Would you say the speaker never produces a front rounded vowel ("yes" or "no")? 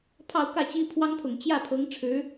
yes